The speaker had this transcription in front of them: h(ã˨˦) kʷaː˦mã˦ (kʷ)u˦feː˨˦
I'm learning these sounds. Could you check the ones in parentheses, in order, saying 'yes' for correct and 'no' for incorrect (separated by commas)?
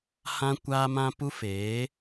no, no